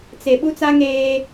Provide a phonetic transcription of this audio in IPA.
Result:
t͡se˨ ɓu˦t͡sa˦ ŋeː˦

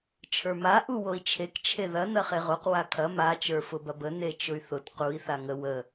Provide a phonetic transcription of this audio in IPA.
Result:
t͡ʃʰə˞ma ʔuwoi̯t͡ʃʰek t͡ʃʰeðɐ nɐχeʁoq wakʰɐ ma t͡ʃə˞fʊbɐbə net͡ʃʊy̯θʊt qui̯ θaŋə wə

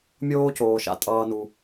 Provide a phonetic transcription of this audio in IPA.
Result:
mʲoː˦coː˩ ʃa̰˦tʼʌː˨nu˩

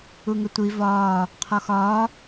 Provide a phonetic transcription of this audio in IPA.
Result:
uŋɘtʷi vɒː | qʰɔxɒː

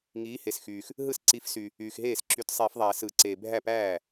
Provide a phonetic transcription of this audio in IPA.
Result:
ŋiː˨˥he˨sxyː˨x | ɦɯ˥˩sǀi˨˥fsy˨ | yː˨xɦeː˥˩sǁy˨˥t sˤiː˨˩˦fðˤæː˨˩˦sɯ˨˩˦ǀeː˨ bʱæ˥˩pæː˥˩

